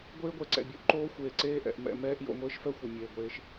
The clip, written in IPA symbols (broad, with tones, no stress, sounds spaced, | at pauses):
ɡʷ eː˦ ɡʷ ɛ˨ ǀ ɛ̰˨ bʲ o˦ ʔ ǃ oː˦ xʷ eː˨ ǀ eː˦ ʔ ɛ̰˨ ʔ m ɛ̰˨ m ɛː˦ ʔ j o̰˨ ŋʷ eː˦ ʃ f œ˦ xʷ e˨ mʲ eː˨ ɡʷ eː˦ ʃ